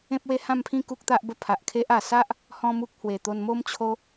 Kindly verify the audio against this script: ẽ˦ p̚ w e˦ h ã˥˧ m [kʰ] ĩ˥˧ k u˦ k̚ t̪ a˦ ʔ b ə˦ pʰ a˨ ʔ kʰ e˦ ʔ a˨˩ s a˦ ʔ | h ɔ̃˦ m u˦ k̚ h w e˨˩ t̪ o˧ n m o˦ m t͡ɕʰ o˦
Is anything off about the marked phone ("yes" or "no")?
yes